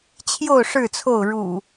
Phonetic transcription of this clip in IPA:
t͡ɕʰjo˥˨ʊ̯ ʂɻ̩˥˨t͡sʰo˥˨ʊ̯ ɻṵ˨˩

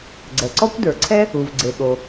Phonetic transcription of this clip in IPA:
ɡ͡ǀɛ˩ǀɔ˥kʷdə˞˩ǀʰɛ˥ | u˩vɡ͡ǀe˩ɠo˩

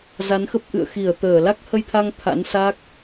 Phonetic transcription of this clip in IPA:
za˨˦nxə˦˥p̚ʔɨ̰˧˨ə̯ xi˧˩ə̯t̪əː˧˩ la˦˥k̚hə˧jt̪ʰa˧ŋ t̪ʰa̰˧˥nsa˦˥k̚

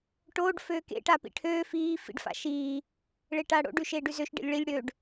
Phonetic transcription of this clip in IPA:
ʈoːɖ føːkḛ ʈapḭʈʰøː fiː fḭɖfa̰ʃiː | ɭeʈaːɽo̰ɖ ʉʃeːɖʉzøʃ ɖḛlʲɭilʲ ɽøɖ

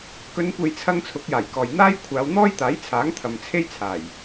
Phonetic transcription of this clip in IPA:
kɵ˨˧nkʷe˨jt͡sʰɐ˧ŋ t͡sʰʊ˨˥k̚jaː˨˩jkɔː˨j n̪aː˥j kʷʰaː˨˧w n̪ɔː˥jt̪aː˨˥j t͡sʰaː˨˥ŋt̪ʰɐ˨mt͡sʰe˥jt͡sʰaː˨˩j

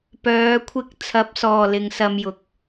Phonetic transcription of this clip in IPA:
pœː˨˧kʷʰɪ˧k̚ t͡sʰɐ˨˥p̚sɔː˨˩ lɪ˨ŋsɐ˧mjʊ˨k̚

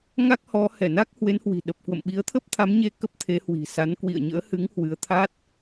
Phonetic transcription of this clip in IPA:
ŋa˦˥k̚hɔ˨˦ hɛ˧˩na˦˥k̚ hwe˨˦nhwi̤˨˩ɗə˨˩p̚ kwə̰˧˨mɓi˨˦ə̯t̪ʰə˦˥p̚ t̪ʰa˨˦mɲe˧ kə˦˥p̚t̪ʰe˨˦hwi̤˨˩sa˨˦n kwḭ˧˨ə̯ɲə̰ː˧˥hɨ˨˦ŋ hwɨ˨˦ə̯t̪ʰa˦˥t̚

